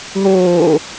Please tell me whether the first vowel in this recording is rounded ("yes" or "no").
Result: yes